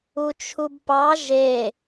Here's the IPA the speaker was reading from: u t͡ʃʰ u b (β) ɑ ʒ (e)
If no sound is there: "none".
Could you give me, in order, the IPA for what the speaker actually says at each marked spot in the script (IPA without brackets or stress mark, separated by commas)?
p, e